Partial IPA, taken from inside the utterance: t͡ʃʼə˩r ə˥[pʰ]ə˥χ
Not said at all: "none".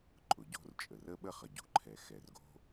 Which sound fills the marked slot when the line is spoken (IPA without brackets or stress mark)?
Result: ɓ